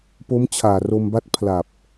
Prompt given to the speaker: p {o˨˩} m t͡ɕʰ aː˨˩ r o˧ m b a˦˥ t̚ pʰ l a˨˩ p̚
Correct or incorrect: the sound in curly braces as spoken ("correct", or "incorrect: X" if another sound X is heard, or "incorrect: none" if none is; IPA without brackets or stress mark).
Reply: incorrect: o˦˥